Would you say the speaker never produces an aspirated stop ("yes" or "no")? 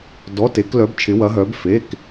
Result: no